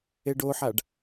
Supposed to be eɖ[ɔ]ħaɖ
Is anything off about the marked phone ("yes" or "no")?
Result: yes